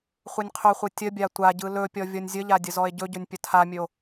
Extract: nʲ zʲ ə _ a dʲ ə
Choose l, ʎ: ʎ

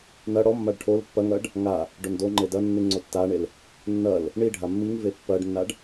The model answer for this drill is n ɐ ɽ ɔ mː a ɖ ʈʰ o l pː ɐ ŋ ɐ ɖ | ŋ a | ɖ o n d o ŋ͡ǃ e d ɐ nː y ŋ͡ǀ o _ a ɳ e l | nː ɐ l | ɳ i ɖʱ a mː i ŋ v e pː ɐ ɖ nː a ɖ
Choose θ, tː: tː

